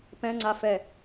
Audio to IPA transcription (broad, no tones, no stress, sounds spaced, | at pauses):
p ɛ̃ ŋ͡ǀ a f ɛ